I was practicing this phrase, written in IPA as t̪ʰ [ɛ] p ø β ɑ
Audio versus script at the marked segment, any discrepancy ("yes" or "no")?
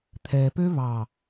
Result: no